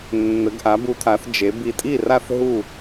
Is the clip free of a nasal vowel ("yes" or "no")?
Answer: yes